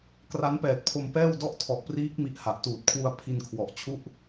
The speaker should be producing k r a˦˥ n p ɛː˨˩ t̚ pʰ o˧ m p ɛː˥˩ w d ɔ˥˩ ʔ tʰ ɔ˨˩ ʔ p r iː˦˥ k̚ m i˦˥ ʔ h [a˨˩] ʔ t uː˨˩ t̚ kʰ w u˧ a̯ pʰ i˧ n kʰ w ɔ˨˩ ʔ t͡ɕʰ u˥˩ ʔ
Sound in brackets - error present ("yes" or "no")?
no